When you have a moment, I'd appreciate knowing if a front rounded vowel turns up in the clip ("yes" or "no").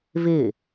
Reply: no